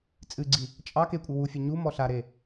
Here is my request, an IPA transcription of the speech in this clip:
t͡sʼɨɡ͡ǀi | t͡ʃʼɑ kekʷʼɨ wufʲɛ ɲumɔ ɬaɾe

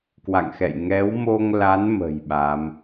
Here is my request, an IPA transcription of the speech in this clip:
kwa̰˧˨ŋxɛ̰˧˨j ŋɛ˨˦wmo˧ŋla˨˦n mə̤˨˩j ɓa˨˦m

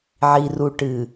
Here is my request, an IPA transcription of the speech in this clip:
ʕi˨ru˨ʈɨː˨

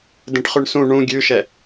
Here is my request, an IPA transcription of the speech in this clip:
dẽʈχʉɳsũ ɳũ ɡʲʉʃɛ

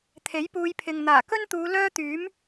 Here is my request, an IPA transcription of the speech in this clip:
t̪ʰe˨˥jpuː˨˧jpʰɪ˨ŋ n̪aː˨˩kɵ˥nt̪uː˨˧ lœː˥t̪yː˨˥m

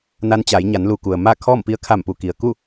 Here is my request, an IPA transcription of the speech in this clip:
na˧˥n t͡ɕaː˩˧jɲa˩˧nlu˩ku˩ə̯ ma˥˨kʰɔː˥˨m pi˧ə̯kʰa˧˩mpu˩ ki˩ə̯ ku˥˨

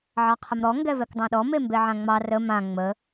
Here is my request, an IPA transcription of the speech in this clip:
ʕɑqʰəmɾɔ ŋɡɛvɛkdˤɑ̃ɗɔ membeʕãŋ͡mɑ rə mã ŋ͡mə

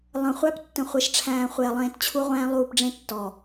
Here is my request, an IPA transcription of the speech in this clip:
lˠə̃˨ χʷæ˦ptːə̃˨χʷe˨ʃʈ͡ʂʰæ̃ː˨ χʷe˨ɐ̯lˠẽː˧tt͡ɕʰu˦ʁʷæ̃ː˦ lˠuː˧pɖ͡ʐẽ˦tːɔ˨

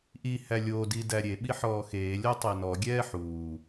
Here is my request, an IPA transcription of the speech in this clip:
ʔihæ lʲodi dæɾʲeɓi ħɔːxeː lʲɔtˤenɔɡʲɛː ħuː

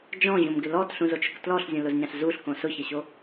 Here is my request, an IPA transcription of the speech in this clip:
d͡ʒɔ̃ʑõmɡɪ lɔtɬũzot͡ʃʊk tlɔɬzʲõlʊzɲãɬ zuɬkõ sʊçɛɕo

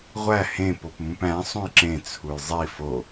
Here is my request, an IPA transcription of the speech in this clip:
ʁʷæ hẽ popmũpæ̃ sˤũjǁẽ t͡sʰujzˤi fo

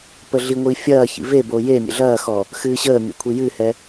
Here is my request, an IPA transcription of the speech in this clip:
pəɮiŋʷi fʲɐːçḭ vebo je mʲə̰ɮɐːxɔ | xɨːɕəːmʲo̰ kʷʰijɨhɛ

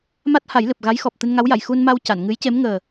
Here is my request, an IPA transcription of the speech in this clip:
ma˦˥t̚ha˨˩˦jlɨ˨˩p̚ ɣa˧˥jxɔ˨˩p̚ t̪ɨ˧nŋa˧˥wja˨˩˨j xu˧nma˧w ca˨˩˨nŋɨ˧˥jce˧˥m ŋəː˨˩

